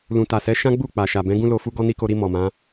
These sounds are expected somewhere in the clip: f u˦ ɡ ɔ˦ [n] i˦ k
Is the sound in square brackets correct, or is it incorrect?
correct